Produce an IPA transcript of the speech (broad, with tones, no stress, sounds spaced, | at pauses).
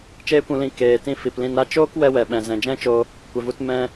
t͡ʃ eː˦ kʷ ũ˧ l ĩ˧ k eː˨ t ĩ˧ f i˨ p l ĩ˧ n ɾ a˦ t͡ʃ oː˦ k w ɛ˧ w ɛ˨ ɓ ɛ̃˨ z ɛ̃˨ d͡ʒ ɛ̃˦ t͡ʃ o˧ | kʷ ɛ˨ v u˧ t m ɛ̃˧